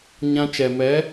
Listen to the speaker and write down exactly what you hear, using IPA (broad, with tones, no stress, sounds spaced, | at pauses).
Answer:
ɲ ã˦ t͡ʃ ɛ˨ m ɛ˨˦